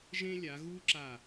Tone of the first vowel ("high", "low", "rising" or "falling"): high